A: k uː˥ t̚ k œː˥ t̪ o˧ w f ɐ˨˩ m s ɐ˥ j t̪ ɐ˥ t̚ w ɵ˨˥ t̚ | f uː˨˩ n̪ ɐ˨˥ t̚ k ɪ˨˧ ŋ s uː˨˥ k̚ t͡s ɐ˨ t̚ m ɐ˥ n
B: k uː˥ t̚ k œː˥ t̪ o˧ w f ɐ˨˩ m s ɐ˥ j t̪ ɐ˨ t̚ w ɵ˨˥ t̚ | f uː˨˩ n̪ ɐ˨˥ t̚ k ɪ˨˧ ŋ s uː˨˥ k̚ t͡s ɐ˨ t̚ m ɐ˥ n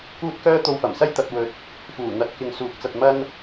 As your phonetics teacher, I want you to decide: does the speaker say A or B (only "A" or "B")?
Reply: B